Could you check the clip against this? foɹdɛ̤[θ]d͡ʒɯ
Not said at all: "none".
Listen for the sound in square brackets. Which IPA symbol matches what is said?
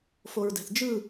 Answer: θ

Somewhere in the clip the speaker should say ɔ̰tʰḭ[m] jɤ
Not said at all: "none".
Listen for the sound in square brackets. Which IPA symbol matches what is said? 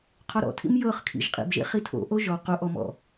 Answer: m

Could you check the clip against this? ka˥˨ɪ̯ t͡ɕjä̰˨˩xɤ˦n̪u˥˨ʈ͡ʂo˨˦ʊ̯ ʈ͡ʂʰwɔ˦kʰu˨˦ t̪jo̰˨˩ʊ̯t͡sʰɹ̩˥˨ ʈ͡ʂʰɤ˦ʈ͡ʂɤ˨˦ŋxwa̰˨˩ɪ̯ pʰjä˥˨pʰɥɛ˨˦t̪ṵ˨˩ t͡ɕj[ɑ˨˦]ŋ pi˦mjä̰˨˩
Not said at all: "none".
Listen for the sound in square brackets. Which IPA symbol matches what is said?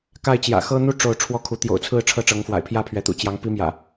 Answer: ɑ˨˦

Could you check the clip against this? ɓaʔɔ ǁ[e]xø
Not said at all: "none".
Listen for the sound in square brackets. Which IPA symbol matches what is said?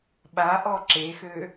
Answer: e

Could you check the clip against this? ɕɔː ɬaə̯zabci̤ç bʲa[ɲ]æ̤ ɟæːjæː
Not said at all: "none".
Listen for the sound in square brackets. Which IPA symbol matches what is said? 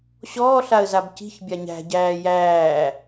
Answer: ɲ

